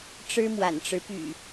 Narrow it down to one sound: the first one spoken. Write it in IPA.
ʈ͡ʂ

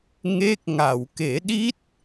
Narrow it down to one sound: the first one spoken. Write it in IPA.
ŋ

